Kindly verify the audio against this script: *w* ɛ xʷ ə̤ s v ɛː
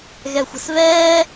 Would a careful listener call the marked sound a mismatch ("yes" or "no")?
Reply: yes